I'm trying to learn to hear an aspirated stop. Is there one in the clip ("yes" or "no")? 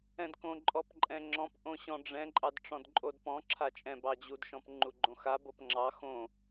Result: yes